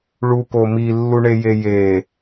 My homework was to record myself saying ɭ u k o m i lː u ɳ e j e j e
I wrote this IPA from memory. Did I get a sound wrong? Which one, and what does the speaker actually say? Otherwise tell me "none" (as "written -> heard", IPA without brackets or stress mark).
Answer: none